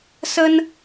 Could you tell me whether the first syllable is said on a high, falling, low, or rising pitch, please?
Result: high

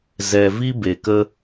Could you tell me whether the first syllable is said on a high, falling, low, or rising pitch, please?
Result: low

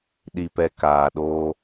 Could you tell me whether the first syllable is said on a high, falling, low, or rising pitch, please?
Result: low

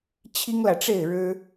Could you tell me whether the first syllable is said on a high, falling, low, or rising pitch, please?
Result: high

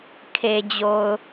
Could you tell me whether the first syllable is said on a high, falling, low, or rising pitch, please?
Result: low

